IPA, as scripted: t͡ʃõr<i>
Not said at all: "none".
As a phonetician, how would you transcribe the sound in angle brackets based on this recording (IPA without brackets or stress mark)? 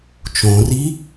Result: i